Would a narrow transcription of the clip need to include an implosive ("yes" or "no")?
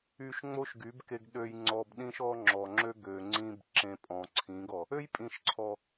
yes